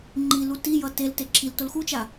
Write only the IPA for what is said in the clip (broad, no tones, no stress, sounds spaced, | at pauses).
ŋ͡ǃ i l u t i j ʌ t e l t e ǁʰ i l t o l x u t͡ʃ a